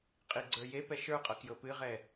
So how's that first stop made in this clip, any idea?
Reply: ejective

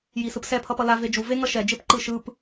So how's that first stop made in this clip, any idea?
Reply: plain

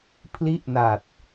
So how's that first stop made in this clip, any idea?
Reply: aspirated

